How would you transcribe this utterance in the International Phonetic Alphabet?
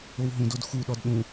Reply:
o w ɦ ũ d o d x u ɗ ɔ d ɗ ũ

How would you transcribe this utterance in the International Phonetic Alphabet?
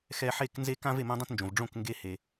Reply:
x ɛ˧ ħ e˥˨ k n z e˥ k ã˥ v e˥˨ m õ˥ dˤ õ˥ t n d͡ʒ õ˩ v ɖ͡ʐ õ˥˨ k ŋ ɡ e˧ h e˩

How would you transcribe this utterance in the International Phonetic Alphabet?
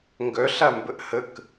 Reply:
ŋ ɡ œ ɬ a m b ə ʔ h ə k

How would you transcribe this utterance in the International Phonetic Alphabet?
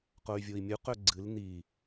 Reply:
q o y̯ vʲ o i̯ mʲ u q ɵ ɡ͡ǀ ɨ l n̪ i

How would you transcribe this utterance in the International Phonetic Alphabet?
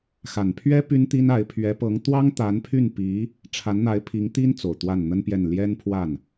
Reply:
x a˨˩ n pʰ ɥ ɛ˥ p y˥ n t̪ i˥ n a˧˥ ɪ̯ pʰ ɥ ɛ˧˥ p ɤ˧˥ ŋ t̪ w ɑ˥ ŋ t̪ a˧˥ n pʰ y˥˩ n p i˧˥ | ʈ͡ʂʰ a˧˥ n n̪ a˧˥ ɪ̯ pʰ i˧˥ ŋ t̪ i˥ n t͡s o˨˩ ʊ̯ t̪ w a˥˩ n n̪ ə˥ n p j ɛ˥˩ n l j ɛ˥ n pʰ w a˥˩ n

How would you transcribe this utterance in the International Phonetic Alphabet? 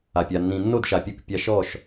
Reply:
a˨ pʲ a˨ nː ĩ˨ nː o˦˨ d ʃ a˨ pʲ u˦ k pʲ a˦ ʃ ɔ˦˨ ʃ

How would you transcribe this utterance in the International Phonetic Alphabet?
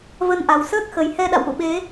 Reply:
v ə˧ n ʔ a˨˩ w s əː˦˥ k̚ x ə˨˩ j h ɛ˧ ɗ a̰˧˨ w ʔ ṵ˧˨ ɓ e˨˦

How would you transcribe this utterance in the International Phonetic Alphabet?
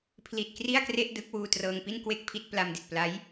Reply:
pʰ l i˨˩ t̚ k r i˥˩ a̯ k r e˥˩ ʔ d ɯ˦˥ k̚ w uː˧ t r ɤː˧ ŋ p i˥˩ n k w e˥˩ k̚ pʰ i˥˩ t̚ p l a˧ m d i˨˩ t̚ p l a˦˥ j

